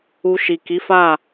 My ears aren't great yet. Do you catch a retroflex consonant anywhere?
no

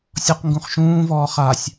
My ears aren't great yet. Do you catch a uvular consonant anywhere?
yes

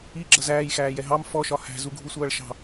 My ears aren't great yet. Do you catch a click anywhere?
yes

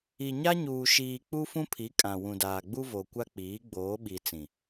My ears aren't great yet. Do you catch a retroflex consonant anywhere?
no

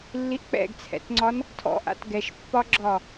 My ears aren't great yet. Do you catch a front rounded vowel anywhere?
no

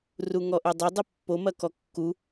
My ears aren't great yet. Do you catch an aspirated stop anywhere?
no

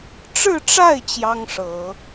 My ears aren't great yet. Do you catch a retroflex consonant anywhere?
yes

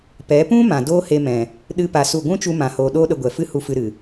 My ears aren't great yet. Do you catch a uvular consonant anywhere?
no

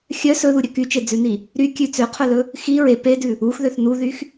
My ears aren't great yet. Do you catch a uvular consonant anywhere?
yes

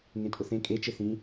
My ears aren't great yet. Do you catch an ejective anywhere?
yes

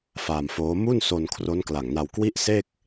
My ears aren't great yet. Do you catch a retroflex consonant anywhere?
no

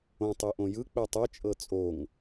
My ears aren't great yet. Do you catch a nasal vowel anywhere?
yes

